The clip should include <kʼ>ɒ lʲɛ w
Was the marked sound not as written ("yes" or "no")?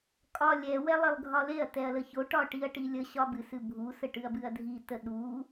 no